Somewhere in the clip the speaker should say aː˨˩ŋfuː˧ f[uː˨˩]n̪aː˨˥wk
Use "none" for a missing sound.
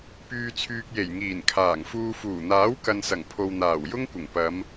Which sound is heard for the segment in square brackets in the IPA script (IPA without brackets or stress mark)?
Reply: uː˨˩